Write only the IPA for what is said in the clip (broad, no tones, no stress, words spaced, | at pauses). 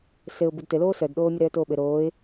sɘʊ̯bud tɘloː sœdɗoː mʲəɾœːtoːɓɘ ɾoːɪ̯